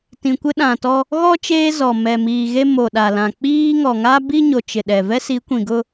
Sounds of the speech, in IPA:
tĩ˨kʷɪ˦ɗã˨tɔ˦ | ɣɔ˦ t͡ʃeː˦zɔ˨ mɛ˨ miː˨ɣe˦ mo˨ɗa˨lã˨ k͡piː˦ ŋɔ˨ŋa˦bi˦ɲo˨ t͡ʃɪ˨ɗɛ˨ vɛ˦si˨˦kʷĩ˨ ɡʊ˦

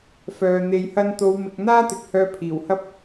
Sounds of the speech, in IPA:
fœː˨ n̪e˨jhɐ˧nt̪o˨˧w mɪ˧k̚ n̪aː˥t̪ɪ˨k̚ hœː˧pʰiː˨˩whɐ˥p̚

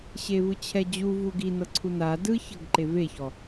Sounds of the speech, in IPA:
ɕevɯt͡ɕʰɛd͡ʑu vuɡi nɤǀʰuna dɯ çɤɡǃeveçɔ

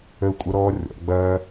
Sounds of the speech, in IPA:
ə˦˨u̯kʷʼɐ˦ ɾɔː˦rʲɔ̰˨˦ ɡ͡bɐː˧

